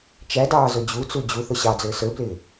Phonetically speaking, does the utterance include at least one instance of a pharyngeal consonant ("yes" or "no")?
no